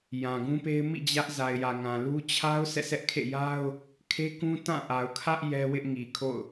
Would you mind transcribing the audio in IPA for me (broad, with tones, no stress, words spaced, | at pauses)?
jã˨ɡũ˦pe˦ɪ̯ mḭ˦˨ d͡ʑä˦ʔ za˨ɪ̯jä˨ŋã˨lu˦ t͡ɕʰa˦ʊ̯ sʰɛ̰˦˨sɛ˦ʔ kʰḛ˦˨ja˦ʊ̯ | kʰe˦kũ˦ tã˦˨ʔa˨ʊ̯kʰä˦ʔ jɛ˦wɪ˦ʔŋi˨ kʰo̰˦˨ʊ̯